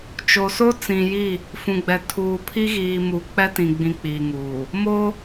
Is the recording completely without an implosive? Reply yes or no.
yes